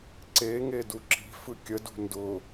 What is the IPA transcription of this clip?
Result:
ǀe ŋeduǁi̤ fɯkʲə dṳndʊ

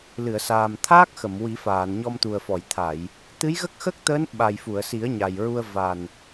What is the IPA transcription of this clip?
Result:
lɨ˨˩˨ə̯saː˨˩m t̪ʰaː˦˥k̚xə˨˩˨m wi˨˩˦faː˨˩˨n ɲɔ˧mt̪u˨˩ə̯fɔ˨˩˨j t̪ʰa˨˩˨j | t̪ɨ˧˥jɣə˦˥k̚xə˦˥k̚t̪əː˧˥n ɓa˨˩jfu˨˩˨ə̯si˨˩˦ə̯ ɲa˨˩jɹu˧ə̯ va˨˩n

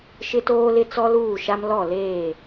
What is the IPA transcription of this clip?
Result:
ʃɪ˦toː˦ lɪ˦t͡sɔ˦luː˦˨ʃa˦m lɔ˦˨leː˦˨

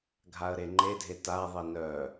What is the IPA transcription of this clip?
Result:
ɡʱaə̯ɾeŋ͡ǃedʱe taðˤi nœ

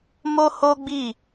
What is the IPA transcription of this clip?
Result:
mo˦ho˦ɡ͡bi˦˨

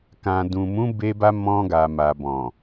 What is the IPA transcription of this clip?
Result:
kã˨dũ˨mũ˨˦ be˧ba˧ mɔ̃˧ ɡa˨ ma˨ bɔ̃˨

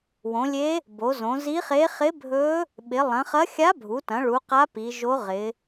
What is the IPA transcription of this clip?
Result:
wõ˩˧lʲe˧˥ | bo˩˧zõ˩˧ zi˧˥χe˧˥ χɪ˧˥bʱɵ˧˥ | ɓɪ˩˧lˠɐ̃˩˧χɐ˧˥ xʲa˧˥bʱu˩˧tɐ̃˩˧ ɭu˩˧ qa˧˥ pi˩˧ʒo˧˥ʁɪ˩˧

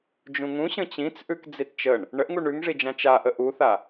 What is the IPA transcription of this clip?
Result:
d͡ʒũŋũɕə̃ t͡ɕĩt͡sʔʉk d͡zitt͡ʃəɳ | ɳəʔŋuɳ ʉŋʐid͡ʒã t͡ʃaʔə ʔuθa

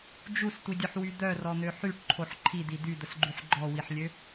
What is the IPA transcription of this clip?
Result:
d͡ʒustʷidʲœħwy d̪œrɔn̪ø ħyʈǃʰoħ ǃʰid̪i d̪yd̪əsɡ͡ǃyħ ɡ͡ǃɔwiħlʲø

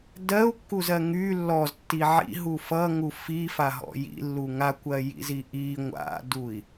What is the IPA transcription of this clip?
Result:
dɜu̯kːuzɜ ŋy lːɔztːi ʕḭɦu fʌŋu fifaɦɔ̰ jḭlːu ŋakʷɜjḭzi ʔi ŋʷa̰dui̯

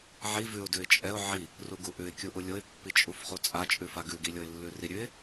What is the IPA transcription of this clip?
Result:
ʕi vʉʊ̯ dʉɪ̯t͡ʃʼɛʊ̯ ʕi | ruɡuʔʉɪ̯ kʲuʔulʲoɪ̯ pːit͡ʃʼufχut͡sʼa t͡ʃʼʉfaɡʉ ɡilʲoɪ̯lːʉri ɾʲʉɪ̯

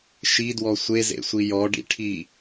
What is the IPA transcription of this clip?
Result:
ʃidwɔ sʷezḛsʷi jɔɖḭʈʰi

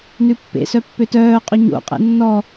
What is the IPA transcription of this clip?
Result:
nʉpːḛ sœpːøtœː qʼɵɲo̰ qʼḛnːɔ

